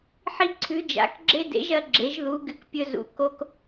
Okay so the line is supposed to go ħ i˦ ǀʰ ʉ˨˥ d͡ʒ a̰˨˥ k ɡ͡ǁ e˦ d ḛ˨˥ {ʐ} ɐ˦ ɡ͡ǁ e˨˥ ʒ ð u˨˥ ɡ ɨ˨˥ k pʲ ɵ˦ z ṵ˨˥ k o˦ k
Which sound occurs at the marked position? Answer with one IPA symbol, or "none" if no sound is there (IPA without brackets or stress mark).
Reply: ʒ